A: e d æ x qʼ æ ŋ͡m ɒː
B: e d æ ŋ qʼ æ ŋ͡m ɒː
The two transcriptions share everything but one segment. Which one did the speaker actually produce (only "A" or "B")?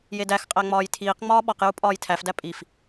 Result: A